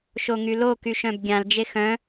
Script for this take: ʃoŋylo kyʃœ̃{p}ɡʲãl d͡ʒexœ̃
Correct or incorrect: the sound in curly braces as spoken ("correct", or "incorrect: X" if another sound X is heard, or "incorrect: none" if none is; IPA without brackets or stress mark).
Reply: incorrect: b